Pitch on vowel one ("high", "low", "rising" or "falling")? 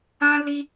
high